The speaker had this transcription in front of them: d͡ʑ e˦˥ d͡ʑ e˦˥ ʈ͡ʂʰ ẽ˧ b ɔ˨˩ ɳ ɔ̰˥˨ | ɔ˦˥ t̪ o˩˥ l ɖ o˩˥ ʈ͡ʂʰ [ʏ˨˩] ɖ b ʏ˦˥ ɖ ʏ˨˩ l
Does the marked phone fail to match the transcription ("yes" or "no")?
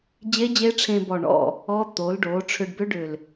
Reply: yes